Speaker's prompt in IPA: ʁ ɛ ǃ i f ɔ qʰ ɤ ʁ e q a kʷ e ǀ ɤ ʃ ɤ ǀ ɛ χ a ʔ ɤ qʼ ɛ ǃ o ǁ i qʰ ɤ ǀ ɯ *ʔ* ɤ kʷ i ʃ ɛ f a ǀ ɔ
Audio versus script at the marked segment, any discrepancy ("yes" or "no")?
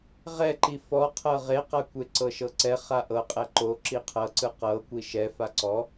yes